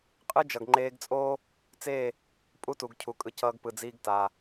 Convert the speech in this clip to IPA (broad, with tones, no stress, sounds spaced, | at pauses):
qʼ ɯ˦ d͡ʒ ʌ˨ ɡ ŋ͡ǃ eː˧ ɡ t͡sʼ oː˦ | t͡s eː˦˨ | pʼ u˦ t u˨ ɡ cʰ u˨ kʼ ɯ˨˦ c ʌː˧ ɡ p ɯ˨ d͡z iː˧ ɡ t aː˨